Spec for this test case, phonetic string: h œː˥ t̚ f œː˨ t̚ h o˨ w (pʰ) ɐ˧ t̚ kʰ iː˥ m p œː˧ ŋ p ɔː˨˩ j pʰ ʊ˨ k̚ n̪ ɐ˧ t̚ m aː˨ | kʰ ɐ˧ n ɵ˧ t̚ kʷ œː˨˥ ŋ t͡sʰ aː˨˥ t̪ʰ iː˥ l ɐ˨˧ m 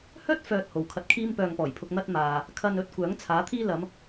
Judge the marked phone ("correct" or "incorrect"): incorrect